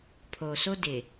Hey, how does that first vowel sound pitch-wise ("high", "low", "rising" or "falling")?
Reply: low